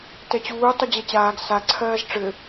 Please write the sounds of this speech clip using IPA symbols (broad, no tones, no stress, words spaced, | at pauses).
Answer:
tɛt͡ɕuː tˤud͡ʑɛt͡ɕaːɡ sa ǀʰɜːzʈ͡ʂɘ